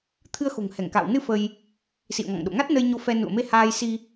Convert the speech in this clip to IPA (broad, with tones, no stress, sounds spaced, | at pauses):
t̪ʰ ɨ˧ ə̯ x o̤˨˩ ŋ h ɛ˧˩ ŋ k a̰ː˧˨ w n ɨ˧ f ə˧ j | s ḭ˧˨ ə̯ ŋ ɔ̰˧˨ ŋ ɗ o̰˧˨ ŋ a˦˥ t̚ n ə˧ j ɲ o˧ f ɛ˧ n ṵ˧˨ ə̯ m e˧ h aː˧ j s i˧